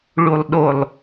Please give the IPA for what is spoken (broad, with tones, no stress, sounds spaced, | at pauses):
ɭ u˨ lˠ ɗ o˨ lˠ